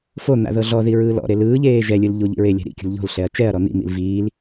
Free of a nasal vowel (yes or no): yes